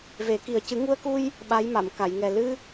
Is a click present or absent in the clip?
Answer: absent